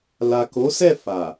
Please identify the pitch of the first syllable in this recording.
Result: low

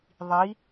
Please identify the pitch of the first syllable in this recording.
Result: rising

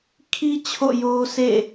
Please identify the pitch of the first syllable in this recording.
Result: high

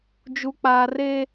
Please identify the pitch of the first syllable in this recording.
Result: low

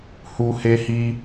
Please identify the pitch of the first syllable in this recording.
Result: high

